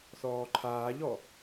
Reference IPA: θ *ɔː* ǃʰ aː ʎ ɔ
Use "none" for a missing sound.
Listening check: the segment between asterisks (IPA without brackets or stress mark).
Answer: ɔː